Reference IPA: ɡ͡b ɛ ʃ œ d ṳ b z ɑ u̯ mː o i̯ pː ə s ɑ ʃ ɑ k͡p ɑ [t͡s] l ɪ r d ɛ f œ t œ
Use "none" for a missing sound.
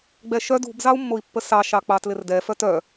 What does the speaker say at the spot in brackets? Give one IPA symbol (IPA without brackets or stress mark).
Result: t